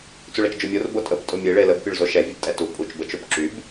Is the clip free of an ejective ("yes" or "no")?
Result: no